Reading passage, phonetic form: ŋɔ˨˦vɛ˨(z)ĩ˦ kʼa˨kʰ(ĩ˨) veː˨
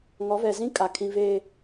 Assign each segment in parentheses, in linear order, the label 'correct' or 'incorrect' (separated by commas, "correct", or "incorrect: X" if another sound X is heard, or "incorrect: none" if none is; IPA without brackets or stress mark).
correct, correct